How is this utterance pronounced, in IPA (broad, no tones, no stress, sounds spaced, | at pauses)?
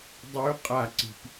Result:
dˤ ʉ qʼ a ǀ i̤ p